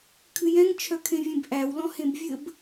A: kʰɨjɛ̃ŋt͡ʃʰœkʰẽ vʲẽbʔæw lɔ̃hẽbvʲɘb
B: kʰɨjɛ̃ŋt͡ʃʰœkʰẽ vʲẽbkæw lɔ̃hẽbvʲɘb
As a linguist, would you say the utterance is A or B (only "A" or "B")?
A